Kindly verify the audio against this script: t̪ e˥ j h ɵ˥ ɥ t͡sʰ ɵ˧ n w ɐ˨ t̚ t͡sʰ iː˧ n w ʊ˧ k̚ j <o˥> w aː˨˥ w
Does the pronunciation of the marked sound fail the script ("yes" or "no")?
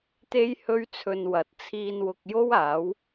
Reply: no